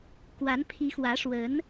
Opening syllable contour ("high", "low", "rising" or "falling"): rising